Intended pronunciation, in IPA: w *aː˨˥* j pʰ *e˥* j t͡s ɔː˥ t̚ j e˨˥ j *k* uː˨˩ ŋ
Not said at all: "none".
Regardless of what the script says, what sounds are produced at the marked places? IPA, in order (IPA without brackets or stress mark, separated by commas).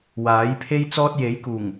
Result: aː˨˥, e˥, k